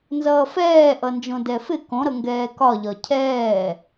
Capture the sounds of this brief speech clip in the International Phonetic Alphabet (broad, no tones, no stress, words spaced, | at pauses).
nzʌːfɛːʔʌnd͡ʒõ dɛfɪ kõɾʌŋɡɛː kɒʎɒ cʰɛː